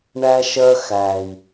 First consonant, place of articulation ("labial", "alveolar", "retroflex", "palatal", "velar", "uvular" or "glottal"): retroflex